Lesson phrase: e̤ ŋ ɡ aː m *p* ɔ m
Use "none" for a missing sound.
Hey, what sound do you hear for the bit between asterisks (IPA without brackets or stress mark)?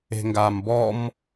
b